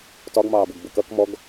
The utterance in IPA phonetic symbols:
t ɒ ɡ m ɑː b ʊ ɡ b ʊ k ʌ k m ɔ ɡ

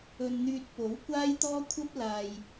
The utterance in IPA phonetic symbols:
ɵ˧ n n̪ yː˧ t̚ p o˨˥ w kʷ aː˥ j t̪ ɔː˥ kʷʰ ɐ˥ p̚ l aː˨ j

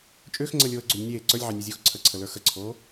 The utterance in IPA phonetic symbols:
t͡ʃʼ ʏː x ŋ͡ǀ əː lʲ oː ə̯ ɡ͡ǀ o lʲ nʲ eː ǀ ə˞ lʲ ʕ ɑ nʲ e zʲ uː x ǀʰ ə ǀʰ ə l ə˞ x ə ǀʰ oː

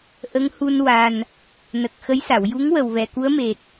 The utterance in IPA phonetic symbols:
ʔ ə˧˥ ŋ h u˧ n w a˨˩ n | n ə˨˩ k̚ x ə˧˥ j s a˨˩˨ w j u˧˥ ŋ w ə˨˩ w v ɛ˨˩˨ k u˧˥ ə̯ m e˨˩ t̚

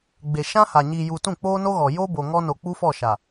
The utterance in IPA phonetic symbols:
ɡ͡b e˨ ʃ ã˦ h a˨ ɲ i˨ j u˨ t ũ˦˨ k͡p oː˦ n o˦ ɣ ɔ˨ j o˦ b o˨ ŋ ɔ˦ n o˨ k͡p u˦ f ɔ˦˨ ʃ a˨

